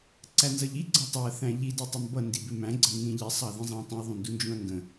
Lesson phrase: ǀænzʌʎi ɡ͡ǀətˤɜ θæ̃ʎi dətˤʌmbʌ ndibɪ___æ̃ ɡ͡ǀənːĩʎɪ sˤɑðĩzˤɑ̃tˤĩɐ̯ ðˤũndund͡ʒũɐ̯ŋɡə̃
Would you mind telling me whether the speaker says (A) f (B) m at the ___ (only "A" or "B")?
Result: B